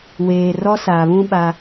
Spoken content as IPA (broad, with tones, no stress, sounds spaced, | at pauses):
w eː˨ r ɔ˦ s a˨ β ũ˦ ɓ a˦